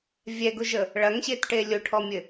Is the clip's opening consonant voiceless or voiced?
voiced